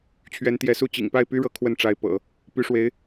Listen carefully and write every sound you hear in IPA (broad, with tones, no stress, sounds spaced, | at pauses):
t͡ɕʰ ɥ ɛ˧˥ n t̪ j ɛ˧˥ s u˥˩ t͡ɕ ḭ˨˩ ŋ p a˥˩ ɪ̯ p y˥ ɻ ɤ˧˥ kʰ w ə˥˩ n ʈ͡ʂ a˧˥ ɪ̯ p ɤ̰˨˩˦ | p y˧˥ ʂ w e˧˥ ɪ̯